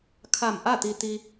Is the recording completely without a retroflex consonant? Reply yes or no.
yes